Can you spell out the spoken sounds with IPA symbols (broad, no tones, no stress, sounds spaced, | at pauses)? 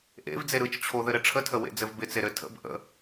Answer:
ʔ ḛ v d͡z e ɾ ɯ t͡ʃ t͡ɕʰ o ð ɘ ɾ ɘ ʈ͡ʂʰ ə tʰ ə w ḛ d͡z ɘ v b ɪ t͡s e ɾ ɘ tʰ ə̰ b ʔ ə̰